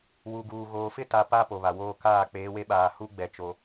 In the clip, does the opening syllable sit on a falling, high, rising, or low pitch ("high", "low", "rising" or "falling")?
low